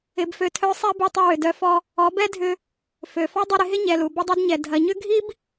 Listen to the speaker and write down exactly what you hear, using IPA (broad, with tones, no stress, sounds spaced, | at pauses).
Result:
ɪ˧ b f ø˧ tʰ œ˦ sˤ ɛ˦ b u˧ tˤ ə˧ w ʏ˨ d œ˧ f ɔ˧ | ɔ˨˦ b ɛ˦ dʱ ʏ˧ | f ø˨ f ɔ˦ dˤ i˧ ɾ ɪ˧ ɦ ɪ˦ ɲ ɛ˨ l u˨ b ə˦ dˤ œ˦ d ɲ ɛ˨ dʱ ɐ˨ ɲ ʏ˦ ɡʱ i˦ b